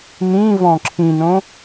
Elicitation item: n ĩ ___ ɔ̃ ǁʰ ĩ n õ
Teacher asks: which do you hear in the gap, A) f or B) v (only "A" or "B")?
B